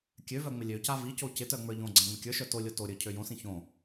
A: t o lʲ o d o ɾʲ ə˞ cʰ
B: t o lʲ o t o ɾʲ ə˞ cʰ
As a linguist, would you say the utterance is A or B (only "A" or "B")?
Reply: B